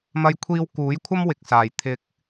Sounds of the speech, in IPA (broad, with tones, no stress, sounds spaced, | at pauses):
m ɐ˧ j kʷʰ iː˧ w k uː˨˥ j kʷʰ ɐ˥ m w ɪ˨ k̚ s aː˨˩ j t̪ʰ ɪ˧ k̚